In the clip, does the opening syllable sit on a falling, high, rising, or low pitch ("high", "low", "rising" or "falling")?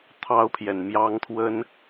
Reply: high